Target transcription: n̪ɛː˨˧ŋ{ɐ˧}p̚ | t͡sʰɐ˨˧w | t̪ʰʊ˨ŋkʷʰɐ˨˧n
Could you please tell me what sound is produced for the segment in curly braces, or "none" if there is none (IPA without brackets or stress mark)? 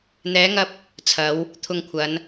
ɐ˧